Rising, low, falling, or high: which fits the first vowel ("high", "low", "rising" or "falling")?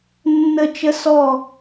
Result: falling